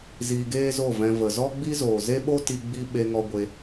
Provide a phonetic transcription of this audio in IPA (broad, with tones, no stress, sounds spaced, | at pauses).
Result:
z iː˧ ɡ eː˦ z o˦˨ v ɛ̃˧ v ə˨ z ɔ˦ ɡ͡b i˦ z oː˨ z e˦ ɓ o˦ t i˧ ɡ͡b i˦ ɓ e˧ ŋ ɔ˧ ɡʷ e˧